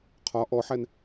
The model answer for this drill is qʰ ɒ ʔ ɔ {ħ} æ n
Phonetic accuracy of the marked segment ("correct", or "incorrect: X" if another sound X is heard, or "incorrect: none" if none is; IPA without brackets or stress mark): correct